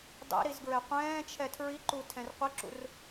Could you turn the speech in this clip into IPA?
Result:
dˤ ḛ ɾ i z ɡ ɹ ɛ qʷ ɛ̃ː t͡ʃʰ ɛ tʰ ɹ i ǃ u tʰ ɛ̃ r qʷ ɪ ǁ ṵ r

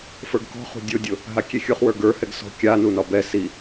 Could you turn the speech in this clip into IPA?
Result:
f ə˞ ɡ k ɔ̤ χ ṳ dʲ ʊ dʲ ʊ | ɦ a kʲ e xʲ ʊ χ w ə˞ ɡ ə˞ h ɛ ɡ s ɔ̤ kʲ a n u n ɒ b ɛ s i

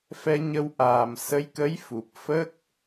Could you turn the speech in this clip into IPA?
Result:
f ɛ˧ ɲ ə˧ w ʔ aː˨˩ m s ə˧˥ j k ə˧˥ j f u˨˩ p̚ f ə˦˥ k̚

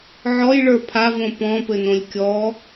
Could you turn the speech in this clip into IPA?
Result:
ʕ ɔ j ɭ ə˞ pʰ a v õ p ɔ̃ p ɘ n õ lʲ kʲ ɔ

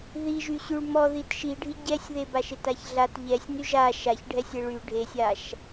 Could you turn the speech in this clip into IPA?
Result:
ð i ʒ y ɕ y ɭ m ɔ ð i t ʃ i ɖʱ i ɟ ɛ sʲ ð e b a ʃ e t a ç ɮ a t ʎ ɛ sʲ n y ʒ a ʃ a ç ɖʱ ɛ sʲ e ɭ y ɖʱ e sʲ a ʃ

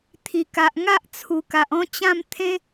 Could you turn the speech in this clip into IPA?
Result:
t̪ʰ i˨˩ k a˨ ʔ ŋ a˦ ʔ t͡sʰ u˨˩ k a˨ ʔ ɔ̃˥˧ t͡ɕ ã˥˧ m t̪ʰ ẽ˦

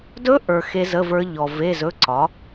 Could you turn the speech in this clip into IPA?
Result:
d ɵ˦˥ ʔ ə˞˨ x e˦˥ z ə˧˥˧ v ə˞˦˥ ʎ ɔ˨ v e˧˥˧ z ɵ˧˥˧ ǀ ɒ˩˥

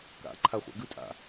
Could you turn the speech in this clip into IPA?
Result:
k a̰ ǃʰ a χʷ a̰ ɡ ʉ tʼ a̰

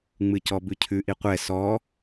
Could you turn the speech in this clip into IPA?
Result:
ŋ͡m ɨ c ɔ b ʉ cʰ ʉ ʔ i qʷ ɛ s ɔ

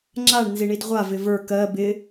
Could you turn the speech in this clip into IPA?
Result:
ŋ͡ǁ a ɳ n z i ɳ i d ʁʷ a v ɪ v ə˞ k ɜ b ɪ

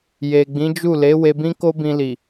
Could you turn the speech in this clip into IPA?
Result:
j e˨ ɡ͡b ĩ˨˦ d͡ʒ u˦˨ l e˨˦ w e˧ b ĩ˦ k o˦ b ĩ˧ l i˨

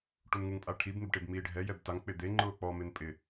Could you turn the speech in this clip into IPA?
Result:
ʈ u n ŋ u ŋ pʼ a ʈʰ i b n̪ ɪ b ʈ e b m iː ɖʱ ɛ j ɛ b t a ŋ k͡p ɪ d̪ e ŋ͡ǃ ʊː k͡p ɔ m ɪ n pʼ ɪ

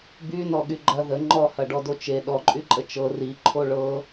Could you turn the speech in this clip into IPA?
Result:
b y n ɔ ɠ y ɡ͡ǃ ɐ ð ə ŋ͡ǃ ɔ h ɐ ɖ ɔ d o t͡ʃ e ɗ ɔ ǃʼ y ǃʼ ə t͡ʃ ɤ r i ǃʰ o ɭ ɤ

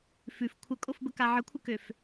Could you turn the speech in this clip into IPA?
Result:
f ʉ f kʷʰ ə kʼ o f b ə k a ʕ ə kʷʰ ə k ø f

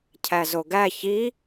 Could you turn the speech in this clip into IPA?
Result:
cʰ æ z o ɡ æ ç i

